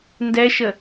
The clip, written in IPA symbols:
n d ɛ ʃ ə

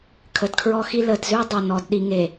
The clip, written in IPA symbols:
kʰ ə˨ d kʰ ɹ ɔ˦ x i˦ l ə˨ d z ʉ˦ dˤ o˨ n ɔ˨ d ɗ i˨ ŋ e˨

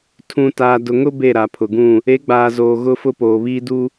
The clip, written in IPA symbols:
tʰ ũ˨ t aː˨ d ʊ˨ ŋ ʊ˦ b e˦˨ ɾ a˨ pʰ ʊ˨ ɡ ũ˦˨ | e˨˦ ɡ͡b aː˨ z oː˨ ɣ ʊ˦ f ʊ˦ p oː˨ β iː˦ d u˦

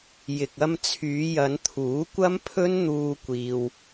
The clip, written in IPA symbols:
j ɪ˨ k̚ ɐ˧ m t͡sʰ yː˨˧ j ɐ˨˧ n t̪ʰ uː˨˥ kʷ ɐ˥ m pʰ ɵ˥ n n̪ uː˧ kʷ iː˧ w

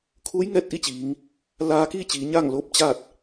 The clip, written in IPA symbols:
kʰ uː˧˥ j ŋ ɛː˧ t̚ ʔ i˥˨ t͡ɕ iː˩˧ ŋ | l aː˧ k iː˥˨ t͡ɕ iː˩˧ ɲ a˥˨ ŋ l oː˥˨ p̚ t͡ɕ a˥˨ t̚

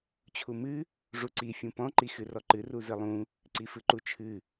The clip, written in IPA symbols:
t͡ɕʰ u m ɨ | ʐ u ǀ i fʲ ũ p ɔ̃ ǃ i x ɨ r ɔ ǃ ɨ r u z ɨ lˠ ũ | ǀ i f ɨ ǃ u t͡ʃʰ ɨ

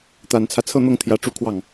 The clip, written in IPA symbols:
t̪ a˨˩ n t͡sʰ ä˦ t͡sʰ ɤ˥˧ n̪ ɤ˥˩ ŋ t̪ʰ j ä˧˥ ʈ͡ʂ u˥˧ kʰ w ɑ˥˩ ŋ

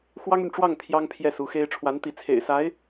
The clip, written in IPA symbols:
x w ɑ˥ ŋ y˨ n ʈ͡ʂ w ɑ˥˩ ŋ t̪ʰ j ɑ˥ ŋ pʰ j ɛ˥˩ s u˧˥ x e˥ ɪ̯ ʈ͡ʂʰ w a˧˥ n t̪ i˧˥ t͡sʰ ḛ˨˩ ɪ̯ s a˧˥ ɪ̯

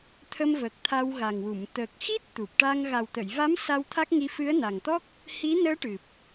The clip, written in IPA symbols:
t̪ʰ ə˧ m v ə˨˩ k̚ t̪ʰ a˧ w ɣ a˨˩ ŋ w u˨˩˨ m t̪ əː˨˩ k̚ x i˦˥ t̚ t̪ u˨˩ p̚ ʈ a˧ ŋ ɣ a˨˩ w t̪ ə˨˩˨ j v a˧˥ m s a˧ w t̪ʰ a˦˥ k̚ ŋ i˧ f ɨ˧˥ ə̯ n a˨˩ ŋ t̪ ɔ˦˥ k̚ | h i˧˥ n əː˧˥ ʈ ɨ˨˩ p̚

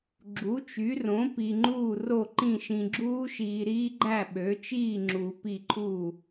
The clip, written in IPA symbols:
ɡ͡ǁ u˩˥ t͡ʃ y˩˥ r õ˩˥ p i˨ ŋ͡ǃ uː˥˩ r o˥˩ ǃ ĩ˥˩ ʃ ĩ˨ ɡ͡ǁ uː˦˥ ʃ iː˨ ɾ iː˦˥ ɡ͡ǃ æ˥˩ ɓ ø˩˥ t͡ʃ iː˥˩ ŋ͡ǁ u˨˩˦ p i˥˩ ǃʰ uː˥˩

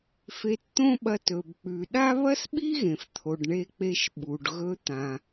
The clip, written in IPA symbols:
f e˧ t t̪ õ˥ ɓ ɐ˧ t ɵ˩ b k͡p ʉ˩ ɗ a˥ β ɐ˥ s ɓ i˥ ɣ ẽ˩ f t̪ʰ o˩ ɖ ɳ e˧ k͡p e˧ ʃ ɓ u˩ ɖ ɣ ɵ˧ t̪ ã˩

